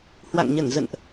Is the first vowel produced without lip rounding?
yes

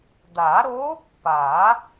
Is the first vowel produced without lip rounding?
yes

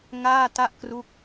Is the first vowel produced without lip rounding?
yes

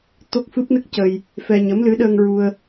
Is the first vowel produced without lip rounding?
no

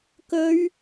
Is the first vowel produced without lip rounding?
no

